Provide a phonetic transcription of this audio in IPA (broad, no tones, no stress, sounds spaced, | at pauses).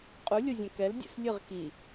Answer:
qʼ u lʲ o zʲ ɛ̃ k ɛ l dʲ ḛ s lʲ ɨ ʁ k i